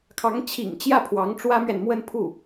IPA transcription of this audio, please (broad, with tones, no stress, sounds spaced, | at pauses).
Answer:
kʰ ɑ˧˥ ŋ t͡ɕʰ ḭ˨˩ ŋ t͡ɕ j ä˥˩ pʰ w ɑ˧˥ ŋ ʈ͡ʂ w ä˥ m ɥ ɛ˨ n m w ə˥˧ n pʰ u˥˩